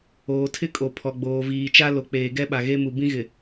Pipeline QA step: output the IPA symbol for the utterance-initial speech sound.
oː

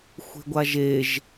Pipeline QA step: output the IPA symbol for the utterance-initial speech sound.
xʷ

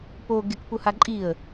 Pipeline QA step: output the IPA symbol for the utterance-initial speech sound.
p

